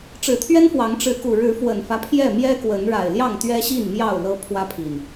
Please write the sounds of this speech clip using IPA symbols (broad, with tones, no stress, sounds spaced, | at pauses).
ʈ͡ʂ ɻ̩˨˩ t̪ʰ ɥ ɛ˦ n f w ɑ˨˦ ŋ ʈ͡ʂ ɻ̩˨˦ k u˨˩ ɻ ɻ̩˨˦ f w ə˨˩ n f ä˦ pʰ j ɛ˥˨ m j ɛ˦ k w ə˨˦ n ɻ a˨˩ ɪ̯ l j ɑ˥˨ ŋ t̪ ɥ ɛ˦ ɕ i˥˨ n m j ɑ˥˨ ʊ̯ l ɤ˦ pʰ w ä˦ pʰ i˨˩ n